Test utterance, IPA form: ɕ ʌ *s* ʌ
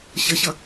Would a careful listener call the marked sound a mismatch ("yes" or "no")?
yes